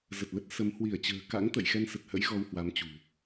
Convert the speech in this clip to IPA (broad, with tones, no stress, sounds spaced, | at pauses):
z ə˨˩ t̚ l ə˦˥ t̚ s ə˨˦ m h w i˧˩ ə̯ t͡ɕ ə̤ː˨˩ k a̰˧˥ ŋ t̪ ə̰˧˨ j x ɛ˧ n s ə˨˩ t̚ h ə̰˧˥ j ɣ ɔ˧ w h w a˨˦ m t͡ɕ ṳ˨˩